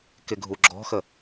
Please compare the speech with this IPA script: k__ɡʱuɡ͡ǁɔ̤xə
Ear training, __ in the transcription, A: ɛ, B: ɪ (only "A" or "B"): B